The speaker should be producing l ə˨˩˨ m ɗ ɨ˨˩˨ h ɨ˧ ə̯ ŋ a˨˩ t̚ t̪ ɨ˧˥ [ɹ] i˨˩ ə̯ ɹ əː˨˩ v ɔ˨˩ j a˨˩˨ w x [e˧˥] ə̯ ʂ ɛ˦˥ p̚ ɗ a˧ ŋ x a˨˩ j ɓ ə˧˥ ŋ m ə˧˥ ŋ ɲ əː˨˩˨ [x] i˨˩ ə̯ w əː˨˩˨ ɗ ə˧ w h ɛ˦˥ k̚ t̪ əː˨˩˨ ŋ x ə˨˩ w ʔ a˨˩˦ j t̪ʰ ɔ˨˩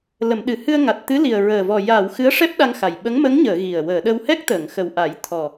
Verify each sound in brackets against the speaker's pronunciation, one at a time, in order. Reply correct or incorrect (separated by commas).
incorrect, incorrect, incorrect